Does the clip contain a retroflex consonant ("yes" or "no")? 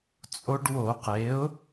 yes